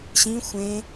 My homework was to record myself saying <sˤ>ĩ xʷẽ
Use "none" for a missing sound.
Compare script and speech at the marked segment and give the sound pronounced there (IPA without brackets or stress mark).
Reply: ɕ